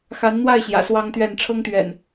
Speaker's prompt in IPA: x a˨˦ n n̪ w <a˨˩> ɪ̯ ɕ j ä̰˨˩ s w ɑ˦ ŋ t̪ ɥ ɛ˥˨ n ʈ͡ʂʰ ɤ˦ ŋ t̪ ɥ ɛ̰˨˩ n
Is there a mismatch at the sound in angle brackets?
yes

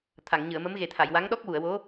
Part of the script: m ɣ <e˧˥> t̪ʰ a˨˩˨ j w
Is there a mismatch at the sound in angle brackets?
yes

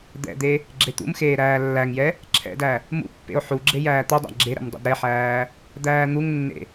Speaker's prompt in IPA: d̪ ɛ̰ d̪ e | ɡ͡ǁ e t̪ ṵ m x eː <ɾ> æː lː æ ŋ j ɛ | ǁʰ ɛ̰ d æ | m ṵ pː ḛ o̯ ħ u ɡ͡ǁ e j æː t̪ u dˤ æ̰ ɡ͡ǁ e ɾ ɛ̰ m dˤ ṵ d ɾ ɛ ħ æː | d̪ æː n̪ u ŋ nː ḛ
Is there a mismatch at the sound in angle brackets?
no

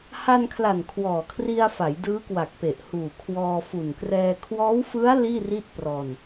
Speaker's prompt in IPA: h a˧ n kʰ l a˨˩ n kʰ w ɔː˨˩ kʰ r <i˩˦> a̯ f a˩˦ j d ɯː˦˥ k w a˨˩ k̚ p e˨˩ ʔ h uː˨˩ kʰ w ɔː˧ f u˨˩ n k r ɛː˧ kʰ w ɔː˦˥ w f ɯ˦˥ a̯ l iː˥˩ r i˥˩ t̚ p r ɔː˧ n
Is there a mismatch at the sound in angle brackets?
yes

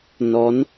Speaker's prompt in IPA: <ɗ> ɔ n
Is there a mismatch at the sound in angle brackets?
yes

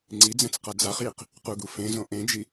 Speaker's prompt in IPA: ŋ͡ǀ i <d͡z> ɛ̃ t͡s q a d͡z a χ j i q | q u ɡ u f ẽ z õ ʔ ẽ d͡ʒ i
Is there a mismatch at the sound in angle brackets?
no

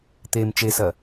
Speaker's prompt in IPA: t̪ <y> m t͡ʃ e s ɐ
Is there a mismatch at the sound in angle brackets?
yes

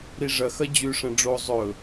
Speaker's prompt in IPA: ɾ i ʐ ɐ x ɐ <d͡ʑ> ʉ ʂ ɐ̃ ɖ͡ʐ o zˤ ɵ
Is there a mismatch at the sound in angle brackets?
no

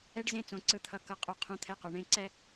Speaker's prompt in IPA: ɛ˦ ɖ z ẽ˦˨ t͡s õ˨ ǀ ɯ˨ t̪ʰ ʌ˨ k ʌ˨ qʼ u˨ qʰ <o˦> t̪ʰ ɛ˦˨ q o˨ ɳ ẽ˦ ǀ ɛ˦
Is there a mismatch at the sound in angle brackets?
yes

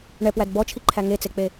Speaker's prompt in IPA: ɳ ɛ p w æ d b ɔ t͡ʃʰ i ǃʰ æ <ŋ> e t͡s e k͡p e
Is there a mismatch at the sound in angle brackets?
no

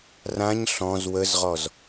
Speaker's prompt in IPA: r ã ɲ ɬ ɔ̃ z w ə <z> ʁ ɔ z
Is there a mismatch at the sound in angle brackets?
no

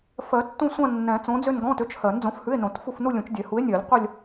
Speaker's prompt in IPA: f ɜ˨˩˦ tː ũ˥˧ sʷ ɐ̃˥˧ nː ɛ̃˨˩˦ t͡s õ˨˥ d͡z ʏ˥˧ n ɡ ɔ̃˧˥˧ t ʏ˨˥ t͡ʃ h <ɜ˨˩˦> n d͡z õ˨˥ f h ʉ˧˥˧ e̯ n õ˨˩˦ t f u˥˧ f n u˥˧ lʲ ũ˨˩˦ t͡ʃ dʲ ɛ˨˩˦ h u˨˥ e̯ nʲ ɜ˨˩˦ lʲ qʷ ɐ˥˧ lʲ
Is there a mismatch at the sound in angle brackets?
no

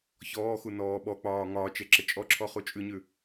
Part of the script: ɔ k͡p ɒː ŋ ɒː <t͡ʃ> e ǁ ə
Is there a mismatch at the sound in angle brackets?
no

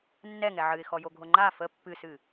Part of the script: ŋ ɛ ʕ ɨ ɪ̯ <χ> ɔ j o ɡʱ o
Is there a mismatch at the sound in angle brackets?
yes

